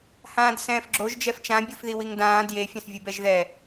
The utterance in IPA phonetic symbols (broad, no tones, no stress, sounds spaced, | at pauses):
h ãː d s ɛ̃ː f ɡ͡ǁ o ʒ d͡ʒ ɛ f t͡ʃ ã bʲ u f ð i w i ŋ d ãː d j e fʲ ã s vʲ u b ɛ ʒ ð ɛ